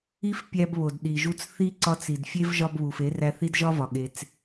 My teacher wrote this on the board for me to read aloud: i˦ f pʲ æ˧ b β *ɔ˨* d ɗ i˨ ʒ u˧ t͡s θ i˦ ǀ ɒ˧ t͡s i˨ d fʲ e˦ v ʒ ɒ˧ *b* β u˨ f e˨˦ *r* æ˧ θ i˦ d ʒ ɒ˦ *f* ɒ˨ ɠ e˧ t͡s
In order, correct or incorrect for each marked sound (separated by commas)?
incorrect, correct, correct, incorrect